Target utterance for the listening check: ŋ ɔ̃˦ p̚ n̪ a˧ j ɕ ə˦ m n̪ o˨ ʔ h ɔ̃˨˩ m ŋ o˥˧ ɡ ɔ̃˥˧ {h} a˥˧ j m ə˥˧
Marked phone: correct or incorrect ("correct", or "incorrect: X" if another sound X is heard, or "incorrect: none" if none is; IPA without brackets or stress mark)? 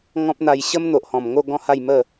correct